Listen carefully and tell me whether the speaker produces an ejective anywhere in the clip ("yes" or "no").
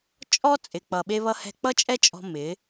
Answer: yes